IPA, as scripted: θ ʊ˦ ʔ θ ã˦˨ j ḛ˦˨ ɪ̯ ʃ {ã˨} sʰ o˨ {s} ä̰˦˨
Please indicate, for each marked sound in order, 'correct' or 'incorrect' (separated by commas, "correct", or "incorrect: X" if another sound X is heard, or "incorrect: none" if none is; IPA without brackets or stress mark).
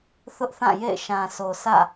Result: correct, correct